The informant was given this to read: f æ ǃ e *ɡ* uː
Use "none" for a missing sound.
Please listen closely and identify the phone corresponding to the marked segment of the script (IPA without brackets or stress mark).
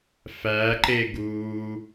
ɡ